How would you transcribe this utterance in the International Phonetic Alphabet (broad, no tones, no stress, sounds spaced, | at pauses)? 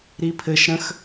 ɾ i pʰ ɘ ʃ ɾ ə̃ x